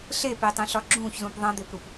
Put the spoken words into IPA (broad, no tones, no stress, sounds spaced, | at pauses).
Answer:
ɬ e p e tˤ ẽ ɬ ɒ ɡ͡ǁ ũ ç z ũ p ðˤ ɐ̃ d̪ e p ɾ u p